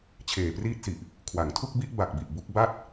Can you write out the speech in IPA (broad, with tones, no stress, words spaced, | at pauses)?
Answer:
t͡ɕʰeː˨˩priː˦˥t̚si˨˩ʔ | kʰwa˩˦ŋtʰu˥˩k̚bi˥˩ʔ ba˨˩k̚bi˨˩ʔ bu˦˥k̚ ba˥˩t̚